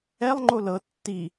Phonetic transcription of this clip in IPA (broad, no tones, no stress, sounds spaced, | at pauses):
ɛ lˠ ŋ͡ǃ o l ɤ tː i